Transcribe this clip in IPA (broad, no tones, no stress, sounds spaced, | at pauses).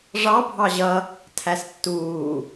ʐ ɑ bʱ ɑ ʑ ʌ | tʰ æ s tː uː